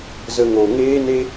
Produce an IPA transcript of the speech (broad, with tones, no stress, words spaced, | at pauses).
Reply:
zə˧ŋo˨ ŋeː˦ne˦